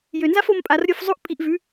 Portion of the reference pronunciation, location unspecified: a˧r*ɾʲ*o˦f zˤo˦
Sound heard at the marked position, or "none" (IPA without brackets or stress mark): ɾʲ